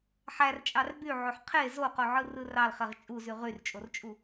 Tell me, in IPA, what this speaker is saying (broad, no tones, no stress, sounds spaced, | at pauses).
ħ æ r t͡ʃʼ ɑ r b y ʕ o ħ qʰ e z o q o ʕ ɯ r ɯ r ɑ l χ e ʁ t͡ʃʼ u z y ʁ y r t͡ʃʼ o r t͡ʃʼ u